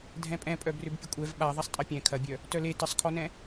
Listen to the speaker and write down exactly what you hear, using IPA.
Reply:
dʱ ɛ̃ pʼ ɛ̃ pʼ œ b r ʏ b pʲ ə kʷʼ ɛ v ɓ a ðˤ ɐ sˤ tʼ ɐ pʲ ɛ̃ kʰ ɐ bʲ œ | t œ l e t ə sˤ kʰ ɔ n ɛ̃

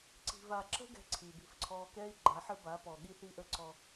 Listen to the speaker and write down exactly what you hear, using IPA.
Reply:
ǀ i̤˨ v a˨ ǁ ə̤˦ ɡ ɛ̤˦ ǀʰ i˨ b i̤˦ f ǀʰ ɔː˦ k ɛː˦ i̯ ɡ͡ǃ a˨˦ ħ ɘ˦ b a˨˦ p ɔ˨ ɠ i˦ θ i˦ ʔ ə˦ ǀ ɔ˦

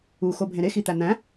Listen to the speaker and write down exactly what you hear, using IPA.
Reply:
u x o bʱ ẽ ɾ e x i t̪ æ n̪ æ̃

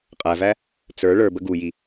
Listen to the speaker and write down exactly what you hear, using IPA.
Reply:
qʼ æ v æ | t͡s ə˞ ɭ ə˞ b ə ɡ u j i

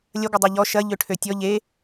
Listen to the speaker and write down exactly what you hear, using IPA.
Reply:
lʲ ɐ ɡʷ ɐ dˤ a ʎ ɔ ʃ ɐ ʎ ø ʈʰ ø tʲ ɔ ʎ e

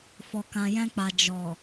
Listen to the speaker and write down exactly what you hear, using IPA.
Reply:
f ɔ˨ k ã˨ j ɛ̃˧ k͡p a˨ d͡ʒ ɔ˨

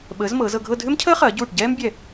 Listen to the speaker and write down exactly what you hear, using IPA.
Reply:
ɓ əː˩˧ z m ɤː˩˧ z ɤ˧ ɡʱ ɤ˥˧ dʱ ʏ˥ m cʰ əː˥ χ ɐː˩˧ ɟ uː˧˩ ʈ ɟ ɛː˥ m bʲ ɛ˧˩

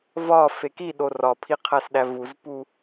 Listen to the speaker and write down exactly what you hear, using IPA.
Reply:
v ɒ f e k i ɗ o r ɒ pʰ i qʰ æ s ɗ æ v u z p u

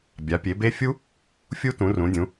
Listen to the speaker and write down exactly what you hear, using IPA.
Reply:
bʲ a˩˧ pʲ e˩˧ b e˦˥ fʲ u˦˥ | fʲ u˦˥ t ũ˩˧ r ũ˩˧ dʲ ũ˩˧

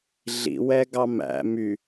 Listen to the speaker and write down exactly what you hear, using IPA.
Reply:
ɮ ḭ w ɛ ɡ ɑ m æ̰ m y

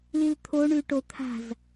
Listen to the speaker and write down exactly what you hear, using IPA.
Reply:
l i l t̪ʰ o ɳ ʉ ʈ o t̪ʰ a̤ z

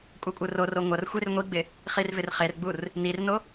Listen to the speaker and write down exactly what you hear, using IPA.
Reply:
kʷʼ ɛ kʷʼ ɯ r o r o ŋʷ ɐ r xʷ e r ŋʷ i ɡ͡b ɪ | χ i r v ɪ r χ e r ɡ͡b u r | n i r n o

